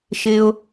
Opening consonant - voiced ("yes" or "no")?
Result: no